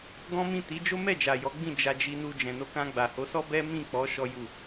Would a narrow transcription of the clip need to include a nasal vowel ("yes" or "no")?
yes